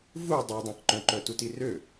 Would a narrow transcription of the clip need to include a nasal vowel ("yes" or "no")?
yes